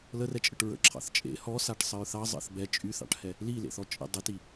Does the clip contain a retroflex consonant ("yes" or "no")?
yes